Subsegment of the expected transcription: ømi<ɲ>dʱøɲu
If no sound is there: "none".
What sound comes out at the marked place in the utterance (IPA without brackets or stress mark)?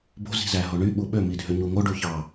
none